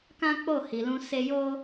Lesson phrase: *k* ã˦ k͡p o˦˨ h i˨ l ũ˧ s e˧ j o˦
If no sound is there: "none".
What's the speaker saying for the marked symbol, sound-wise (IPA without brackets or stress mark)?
k